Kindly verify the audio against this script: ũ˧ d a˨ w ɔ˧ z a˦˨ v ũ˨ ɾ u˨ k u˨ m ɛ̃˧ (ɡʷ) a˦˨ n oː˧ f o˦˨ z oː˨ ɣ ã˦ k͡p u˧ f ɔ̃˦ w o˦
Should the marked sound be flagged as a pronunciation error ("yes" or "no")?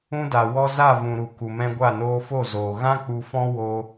no